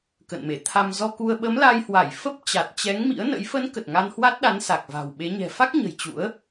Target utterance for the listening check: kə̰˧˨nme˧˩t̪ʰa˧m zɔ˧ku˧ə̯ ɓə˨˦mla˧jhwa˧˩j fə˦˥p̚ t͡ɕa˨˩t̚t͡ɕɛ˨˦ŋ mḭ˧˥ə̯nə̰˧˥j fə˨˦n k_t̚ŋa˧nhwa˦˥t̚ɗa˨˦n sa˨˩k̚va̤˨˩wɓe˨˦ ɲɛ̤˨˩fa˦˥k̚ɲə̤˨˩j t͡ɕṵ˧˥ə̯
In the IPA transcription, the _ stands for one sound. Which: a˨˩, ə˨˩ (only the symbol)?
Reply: ə˨˩